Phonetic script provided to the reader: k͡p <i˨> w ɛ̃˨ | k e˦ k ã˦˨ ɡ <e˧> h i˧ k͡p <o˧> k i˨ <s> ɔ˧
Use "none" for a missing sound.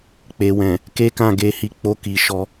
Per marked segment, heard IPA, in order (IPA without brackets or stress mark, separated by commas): e˨, e˧, o˧, ʃ